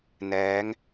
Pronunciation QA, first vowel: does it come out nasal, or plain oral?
oral